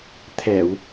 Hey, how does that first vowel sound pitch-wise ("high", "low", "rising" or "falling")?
low